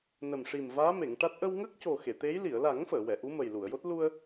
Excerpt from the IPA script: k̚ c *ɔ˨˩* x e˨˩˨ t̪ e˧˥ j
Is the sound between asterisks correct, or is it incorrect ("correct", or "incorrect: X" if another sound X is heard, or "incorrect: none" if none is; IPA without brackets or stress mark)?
incorrect: o˨˩